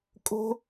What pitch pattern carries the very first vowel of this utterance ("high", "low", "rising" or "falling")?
high